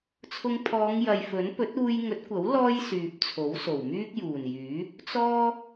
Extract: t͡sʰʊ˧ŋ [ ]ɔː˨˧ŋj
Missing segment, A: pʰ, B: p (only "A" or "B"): A